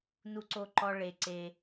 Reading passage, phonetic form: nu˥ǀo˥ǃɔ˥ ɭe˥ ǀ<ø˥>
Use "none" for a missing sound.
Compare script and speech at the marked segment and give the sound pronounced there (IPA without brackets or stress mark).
e˥